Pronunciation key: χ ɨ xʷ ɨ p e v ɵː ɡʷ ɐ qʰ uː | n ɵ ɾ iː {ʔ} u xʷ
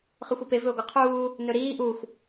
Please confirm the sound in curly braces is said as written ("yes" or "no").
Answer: yes